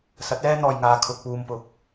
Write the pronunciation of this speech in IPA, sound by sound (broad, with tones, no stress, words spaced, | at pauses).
sɐ˨˥t̚ɛː˥n̪ɔː˨jŋaː˨ kʰʊ˨k̚puː˨mpʊ˨˥k̚